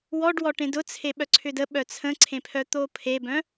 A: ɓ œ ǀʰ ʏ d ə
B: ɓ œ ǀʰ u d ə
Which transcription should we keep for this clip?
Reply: A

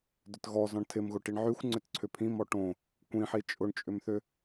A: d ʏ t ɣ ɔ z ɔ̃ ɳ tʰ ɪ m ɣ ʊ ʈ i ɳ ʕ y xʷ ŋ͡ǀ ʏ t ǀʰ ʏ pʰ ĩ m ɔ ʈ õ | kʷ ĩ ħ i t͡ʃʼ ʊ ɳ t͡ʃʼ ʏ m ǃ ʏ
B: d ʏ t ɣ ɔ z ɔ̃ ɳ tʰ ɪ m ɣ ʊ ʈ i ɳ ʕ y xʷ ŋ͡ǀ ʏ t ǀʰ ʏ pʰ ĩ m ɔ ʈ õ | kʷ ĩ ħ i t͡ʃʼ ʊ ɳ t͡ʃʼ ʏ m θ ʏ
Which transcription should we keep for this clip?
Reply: B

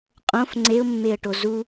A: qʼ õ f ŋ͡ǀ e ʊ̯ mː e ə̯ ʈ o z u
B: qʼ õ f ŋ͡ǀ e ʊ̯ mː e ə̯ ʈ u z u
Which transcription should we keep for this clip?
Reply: A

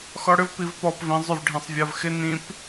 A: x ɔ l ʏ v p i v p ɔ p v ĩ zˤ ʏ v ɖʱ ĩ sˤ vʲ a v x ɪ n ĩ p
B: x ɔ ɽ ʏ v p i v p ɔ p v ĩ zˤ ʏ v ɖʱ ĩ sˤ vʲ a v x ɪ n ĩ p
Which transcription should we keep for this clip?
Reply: B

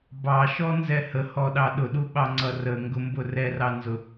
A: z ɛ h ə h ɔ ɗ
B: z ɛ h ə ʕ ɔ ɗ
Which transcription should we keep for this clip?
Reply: A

